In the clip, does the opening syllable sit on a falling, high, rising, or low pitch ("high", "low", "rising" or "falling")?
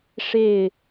falling